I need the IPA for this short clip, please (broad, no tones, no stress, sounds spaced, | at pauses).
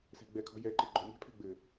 s ɛ̤ ɡ͡b ɛ kʰ ɔ̤ j ɛ ǃ ɘ ɡ͡ǃ o̤ mʲ ɛ̤ pʰ ɛ̤ ɡ͡b ɘ